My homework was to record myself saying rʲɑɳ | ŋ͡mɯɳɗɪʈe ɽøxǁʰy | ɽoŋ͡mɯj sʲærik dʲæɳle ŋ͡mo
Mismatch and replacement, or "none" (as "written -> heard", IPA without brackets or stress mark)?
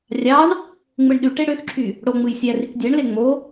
ɪ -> y